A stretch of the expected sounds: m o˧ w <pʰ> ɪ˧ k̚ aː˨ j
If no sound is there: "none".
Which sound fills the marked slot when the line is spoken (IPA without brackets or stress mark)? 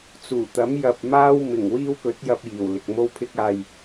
pʰ